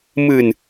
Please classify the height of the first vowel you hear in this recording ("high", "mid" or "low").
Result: high